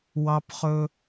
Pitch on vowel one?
high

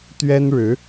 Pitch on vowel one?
high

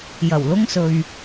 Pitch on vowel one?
low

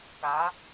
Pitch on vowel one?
rising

